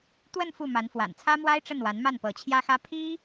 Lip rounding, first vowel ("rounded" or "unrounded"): unrounded